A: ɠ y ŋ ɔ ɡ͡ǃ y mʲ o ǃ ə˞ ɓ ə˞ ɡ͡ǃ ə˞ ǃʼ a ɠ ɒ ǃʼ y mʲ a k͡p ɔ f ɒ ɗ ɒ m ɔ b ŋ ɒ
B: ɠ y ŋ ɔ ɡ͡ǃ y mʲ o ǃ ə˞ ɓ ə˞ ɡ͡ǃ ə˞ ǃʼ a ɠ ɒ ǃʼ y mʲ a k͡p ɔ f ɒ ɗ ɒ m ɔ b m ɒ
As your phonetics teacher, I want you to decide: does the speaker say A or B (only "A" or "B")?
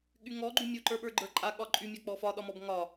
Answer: A